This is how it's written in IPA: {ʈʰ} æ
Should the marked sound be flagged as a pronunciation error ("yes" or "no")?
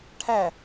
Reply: no